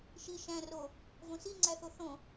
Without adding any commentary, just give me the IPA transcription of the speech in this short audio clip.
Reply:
ʃ i ʃ æ̃ r o | v õ s i ŋ͡ǀ æ θ o θ õ

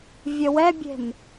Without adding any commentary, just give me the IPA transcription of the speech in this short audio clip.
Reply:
vʲ ə w ɛ bʲ e̤ m

